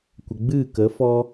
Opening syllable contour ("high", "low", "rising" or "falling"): low